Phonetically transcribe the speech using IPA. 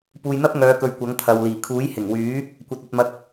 p uː˨ j n̪ ɐ˥ p̚ ŋ œː˨˧ k ɵ˨ ɥ kʷ ɐ˨˥ ŋ t̪ʰ ɐ˨ w l iː˨˩ kʰ uː˨˥ j h ɪ˨˩ ŋ w yː˨˥ | kʷ ɐ˧ t̚ ɐ˧ t̚ m ɐ˧ k̚

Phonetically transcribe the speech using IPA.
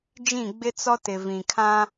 d͡ʒ ĩ˦˨ ɡ͡b ɪ˦ t͡s ɔ˦ t ɪ˨ v ĩ˨ kʰ ã˦

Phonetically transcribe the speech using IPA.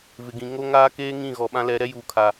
v ɪ˨ ɡ ĩ˨ ŋ o˦ ŋ aː˦ k eː˦ ŋ ĩ˦˨ ɣ ɔ˨ ɓ ã˦ l ɛ˨˦ ɾ ɛ˦ j uː˨ kʰ a˨

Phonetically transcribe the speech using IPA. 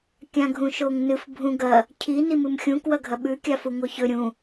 kʲ ã ɡʱ ũ ʃ o ŋ n ɨ f bʱ ũ ɡ ɐ | cʰ i n i m ɨ m xʲ ũ k w ɐ ɡʱ ɐ ɓ ʉ kʲ a f u ŋ o ç ɵ ɾʲ ũ

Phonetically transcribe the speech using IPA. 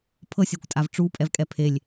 pʰ ɤ sʲ ɤ kʷ tʼ a v ʈ͡ʂ u pʼ ɛ v kʼ ɛ pʰ e lʲ

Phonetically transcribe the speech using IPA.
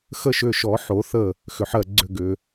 x ə˧˥ ʃ ʏ˩˧˩ ʃ ɔ˨˩˦ ħ o˨˩˦ θ ə˧˩ | x ʏ˩ ħ ɜ˧˩ ɡ͡ǀ ʏ˧˩ ɡ ʏ˩

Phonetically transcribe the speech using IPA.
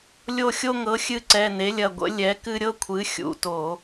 lʲ o˦˨ xʲ o˦ ŋ ɤ˩˥ xʲ ɨ˦˨ ǀ ɛ˩˧˩ n e˩˥ lʲ ɐ˩˧˩ ɡʷ ə̰˩˥ lʲ ɛ˩˥ k ɨ˦ ɾʲ ɤ˦ kʷʰ ɨ˩˥ xʲ ṵ˩˧˩ t o˧˩˧

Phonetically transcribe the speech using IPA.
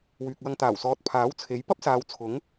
w yː˨ k̚ w ɐ˧ ŋ t̪ aː˨˩ w s ɔː˨˥ t̚ pʰ aː˨˥ w t͡sʰ e˨˥ j p ɐ˥ p̚ s aː˨˧ w t͡sʰ ʊ˨˥ ŋ

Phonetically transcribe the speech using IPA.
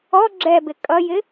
ɔ ɡ͡ǁ ɛ b ɪ kʼ ʌ j ɪ

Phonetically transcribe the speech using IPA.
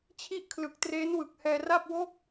t͡ɕʰ i˥˩ ʔ kʰ l ɯ˨˩ k̚ t r eː˦˥ n w ɯ˨˩ k̚ h ɛː˧ r a˥˩ p̚ w o˥˩ k̚

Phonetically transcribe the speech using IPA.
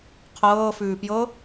qʰ ɤː f ʉː p j ɤ

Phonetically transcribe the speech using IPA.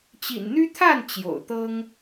t͡ɕ ḭ˨˩ n n̪ y˦ t̪ʰ a˥˨ n t͡ɕ j o̰˨˩ ʊ̯ t̪ ɤ˦ ŋ

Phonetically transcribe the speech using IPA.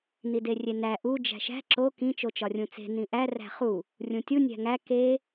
n i d e rʲ e n æ ʔ u d͡ʒ æ̤ ʃ æ̤ ǁ o k ĩ t͡ʃ o t͡ʃ ɒ rʲ ũ t͡s e̤ n ĩ ʔ æ r æ̤ χ u | rʲ ũ tʲ u nʲ æ̤ ŋ æ k e

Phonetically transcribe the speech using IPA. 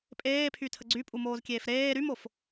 pʼ eː pʰ y tʰ ə ɡ͡ǀ y pʼ u m oː z kʲ eː f ɾ eː ɾ y m o f

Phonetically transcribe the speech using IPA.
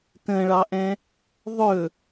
t ə̃ ɭ ɑ ʔ ɛ̃ | ðˤ ɵ

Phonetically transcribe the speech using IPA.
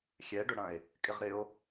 xʲ ɛ ɖ ʊ ɽ ɐ̃ e̯ | kʼ ɪ ʁ ɾ ɪ o̯

